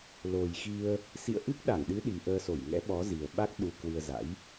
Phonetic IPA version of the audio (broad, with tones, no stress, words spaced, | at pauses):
lo˨˩jxi˧ə̯ | sḭ˧˨ə̯ʔɨ˦˥k̚ɗa˧˩ŋɗɨ˨˦ ɗi˨˩ʔəː˧so˧˩j ŋɛ̰˧˥ɓɔ˨˦zi˨˩ə̯ɓa˦˥k̚ ɗu˧ kwɨ˧ə̯za̰˧˥j